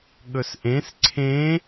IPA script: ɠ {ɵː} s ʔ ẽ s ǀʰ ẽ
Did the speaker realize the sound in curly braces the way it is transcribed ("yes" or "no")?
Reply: no